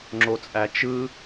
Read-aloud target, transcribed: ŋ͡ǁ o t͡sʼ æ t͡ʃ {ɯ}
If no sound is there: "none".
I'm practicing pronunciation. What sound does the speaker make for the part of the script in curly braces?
ɯ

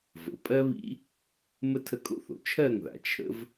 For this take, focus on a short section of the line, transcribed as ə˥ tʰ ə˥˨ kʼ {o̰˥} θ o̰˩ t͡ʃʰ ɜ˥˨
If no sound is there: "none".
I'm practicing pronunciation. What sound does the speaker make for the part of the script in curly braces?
o̰˥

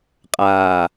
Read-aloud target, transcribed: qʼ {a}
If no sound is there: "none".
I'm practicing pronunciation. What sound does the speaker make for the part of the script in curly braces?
aː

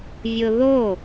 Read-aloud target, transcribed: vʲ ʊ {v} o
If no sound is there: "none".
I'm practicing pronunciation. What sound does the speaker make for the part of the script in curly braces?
ð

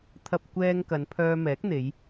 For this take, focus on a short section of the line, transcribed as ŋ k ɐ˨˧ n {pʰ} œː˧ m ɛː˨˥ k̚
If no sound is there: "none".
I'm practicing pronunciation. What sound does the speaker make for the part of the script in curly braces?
pʰ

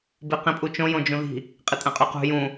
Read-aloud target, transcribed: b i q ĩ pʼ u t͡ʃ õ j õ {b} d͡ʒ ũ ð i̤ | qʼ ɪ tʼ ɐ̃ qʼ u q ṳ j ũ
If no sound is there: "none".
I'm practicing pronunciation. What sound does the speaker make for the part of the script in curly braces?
none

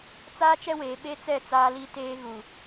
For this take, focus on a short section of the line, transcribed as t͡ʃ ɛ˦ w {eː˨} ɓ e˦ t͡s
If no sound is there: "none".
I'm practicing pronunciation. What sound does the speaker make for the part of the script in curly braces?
eː˨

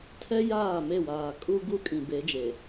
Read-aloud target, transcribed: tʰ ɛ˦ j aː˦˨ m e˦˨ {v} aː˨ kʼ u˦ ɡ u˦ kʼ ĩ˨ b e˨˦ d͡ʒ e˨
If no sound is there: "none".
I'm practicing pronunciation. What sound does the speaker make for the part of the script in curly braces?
w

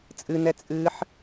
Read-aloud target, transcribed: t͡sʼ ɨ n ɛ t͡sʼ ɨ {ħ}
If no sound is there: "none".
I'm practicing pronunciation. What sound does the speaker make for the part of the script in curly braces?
ħ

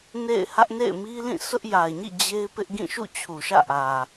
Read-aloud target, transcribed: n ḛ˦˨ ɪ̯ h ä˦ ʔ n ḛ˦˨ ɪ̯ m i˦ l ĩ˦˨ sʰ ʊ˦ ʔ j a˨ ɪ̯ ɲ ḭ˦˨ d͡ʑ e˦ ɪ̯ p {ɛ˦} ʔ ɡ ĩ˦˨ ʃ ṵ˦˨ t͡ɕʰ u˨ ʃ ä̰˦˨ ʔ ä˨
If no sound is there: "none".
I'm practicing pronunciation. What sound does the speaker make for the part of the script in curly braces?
ɪ˦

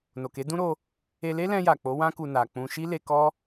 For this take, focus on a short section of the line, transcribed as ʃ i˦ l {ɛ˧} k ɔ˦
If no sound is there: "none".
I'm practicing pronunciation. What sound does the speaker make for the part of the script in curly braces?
e˧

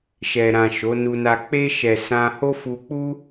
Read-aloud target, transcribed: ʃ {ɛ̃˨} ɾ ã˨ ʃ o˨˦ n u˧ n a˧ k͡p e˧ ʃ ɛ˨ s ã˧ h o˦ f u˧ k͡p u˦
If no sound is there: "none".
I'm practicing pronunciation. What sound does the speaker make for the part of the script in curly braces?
ɛ˨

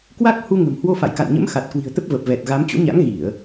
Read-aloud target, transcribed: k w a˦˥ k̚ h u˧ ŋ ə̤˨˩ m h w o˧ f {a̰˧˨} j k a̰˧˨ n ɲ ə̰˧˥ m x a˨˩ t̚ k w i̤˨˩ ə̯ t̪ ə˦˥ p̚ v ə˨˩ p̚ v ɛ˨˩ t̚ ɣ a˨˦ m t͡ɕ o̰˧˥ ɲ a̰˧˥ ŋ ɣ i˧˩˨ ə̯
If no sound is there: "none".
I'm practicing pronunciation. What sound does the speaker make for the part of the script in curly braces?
a̰˧˨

